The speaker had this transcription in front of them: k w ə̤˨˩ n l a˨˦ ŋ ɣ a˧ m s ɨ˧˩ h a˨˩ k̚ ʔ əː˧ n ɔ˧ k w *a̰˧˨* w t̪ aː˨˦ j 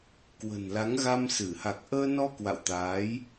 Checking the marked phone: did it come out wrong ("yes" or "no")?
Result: no